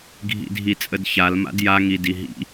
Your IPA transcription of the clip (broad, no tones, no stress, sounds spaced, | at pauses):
ɡʱ ḭ dʱ i t͡sʼ ə d ç a l m a̰ d j a ŋ i d i ɦ ḭ